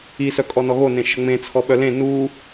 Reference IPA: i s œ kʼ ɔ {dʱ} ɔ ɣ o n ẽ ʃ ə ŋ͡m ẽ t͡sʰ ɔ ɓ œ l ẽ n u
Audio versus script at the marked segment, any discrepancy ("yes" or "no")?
yes